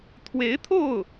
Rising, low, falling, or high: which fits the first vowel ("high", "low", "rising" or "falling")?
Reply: rising